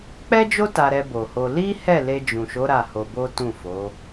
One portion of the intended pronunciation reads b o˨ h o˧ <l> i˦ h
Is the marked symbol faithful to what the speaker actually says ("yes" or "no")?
yes